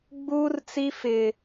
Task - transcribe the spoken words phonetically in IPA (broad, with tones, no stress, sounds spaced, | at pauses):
ɡ͡b uː˦ r t͡s i˦ f ɪ˦